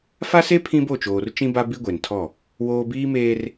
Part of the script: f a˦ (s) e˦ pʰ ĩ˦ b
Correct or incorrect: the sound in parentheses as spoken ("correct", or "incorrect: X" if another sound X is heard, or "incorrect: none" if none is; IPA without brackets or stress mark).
correct